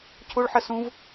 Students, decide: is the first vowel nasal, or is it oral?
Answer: oral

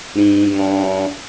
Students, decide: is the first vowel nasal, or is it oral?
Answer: nasal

